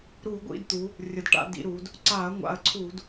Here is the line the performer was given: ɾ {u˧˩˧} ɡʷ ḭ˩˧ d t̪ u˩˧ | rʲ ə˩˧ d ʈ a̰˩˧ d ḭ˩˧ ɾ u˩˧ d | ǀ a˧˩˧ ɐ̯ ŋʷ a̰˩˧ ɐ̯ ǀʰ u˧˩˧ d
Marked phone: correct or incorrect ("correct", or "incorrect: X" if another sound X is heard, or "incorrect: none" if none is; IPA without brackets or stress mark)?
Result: correct